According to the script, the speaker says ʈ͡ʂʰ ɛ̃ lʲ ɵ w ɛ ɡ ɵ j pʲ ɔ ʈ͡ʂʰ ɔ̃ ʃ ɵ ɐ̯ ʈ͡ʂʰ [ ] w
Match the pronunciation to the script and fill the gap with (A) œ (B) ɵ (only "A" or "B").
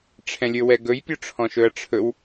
B